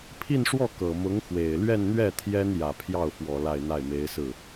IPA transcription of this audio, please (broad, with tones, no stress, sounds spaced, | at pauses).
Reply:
pʰ i˥˧ n ʂ w ɔ˥˩ k ɤ˨˩ m ʊ˧˥ ŋ x w e˨˩ ɪ̯ l ɥ ɛ˥˧ n n̪ ɥ ɛ˥˩ t̪ʰ j ɛ˥ n j ä˨˩ pʰ j ɑ˥˩ ʊ̯ f w ɔ˨˩ l a˥˧ ɪ̯ n̪ a˥˩ ɪ̯ m e˧˥ ɪ̯ s ɹ̩˥˩